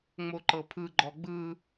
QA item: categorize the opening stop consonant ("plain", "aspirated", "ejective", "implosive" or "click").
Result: click